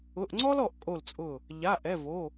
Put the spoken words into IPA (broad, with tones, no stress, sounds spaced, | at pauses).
ʊ˩˧˩ ʔ ŋ͡ǀ ɔ˥ l ɔ˧˩ ʔ kʼ o˧˩ l t͡sʼ ʊ˧˩ | ʎ a˩˧˩ ʔ ɛ˩˧˩ v o˩˧˩